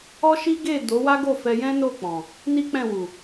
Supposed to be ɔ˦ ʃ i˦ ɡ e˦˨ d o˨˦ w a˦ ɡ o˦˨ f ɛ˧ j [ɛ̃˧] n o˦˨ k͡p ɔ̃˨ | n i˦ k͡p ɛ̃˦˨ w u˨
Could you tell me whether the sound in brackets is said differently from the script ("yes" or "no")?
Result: yes